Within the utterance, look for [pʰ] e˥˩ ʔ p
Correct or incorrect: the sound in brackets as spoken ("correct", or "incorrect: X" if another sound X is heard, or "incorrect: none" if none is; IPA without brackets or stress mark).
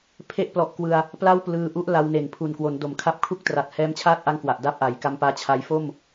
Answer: correct